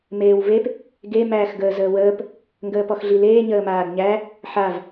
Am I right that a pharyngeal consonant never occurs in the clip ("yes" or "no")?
no